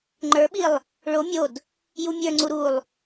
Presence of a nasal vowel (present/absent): absent